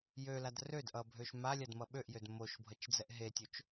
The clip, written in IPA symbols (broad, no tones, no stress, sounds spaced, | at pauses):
j ø l a d r ø d ʔ ʌ bʱ ø ʃ m a lʲ a d m ʌ ɓ ø ʔ j ø d m o ʃ bʱ ʌ t͡ʃ d͡z ɛ ʔ ɦ e tʲ o t͡ʃ